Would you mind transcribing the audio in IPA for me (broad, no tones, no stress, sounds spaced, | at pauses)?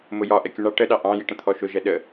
m ʊ j ɒ ʔ ɛ kʲ u ɳ ɑ ʈ ə ɗ ɑ ʔ ɑ̃ j i ʈ ə̃ t̪ʰ ɔ ʃ ʊ ʒ ɛ ɗ ə